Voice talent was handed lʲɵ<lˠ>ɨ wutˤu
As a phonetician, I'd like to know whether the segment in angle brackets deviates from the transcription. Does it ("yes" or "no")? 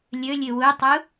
yes